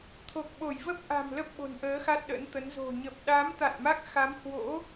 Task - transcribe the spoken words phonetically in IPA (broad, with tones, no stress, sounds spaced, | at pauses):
t̪ʰ o˨˩ k̚ ɓ o˧˩ j v ə˦˥ p̚ ʔ a̤˨˩ m l ə˦˥ p̚ ɓ o̤˨˩ n ʔ əː˨˦ x a˦˥ t̚ ɗ ə̰˧˥ n t̪ ə˨˦ n z o̤˨˩ ɲ ə˨˩ p̚ ɗ a˨˦ m t̪ a̰˧˨ n m a˦˥ k̚ x a˨˦ m h w o̰˧˥